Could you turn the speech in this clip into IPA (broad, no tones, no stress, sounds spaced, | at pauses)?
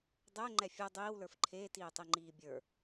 dˤ ɛ ŋ͡ǃ ɛ fʲ ɛ dˤ iː w l ə˞ f ǃʰ eː t iː tˤ i ŋ͡ǃ iː bʲ ə˞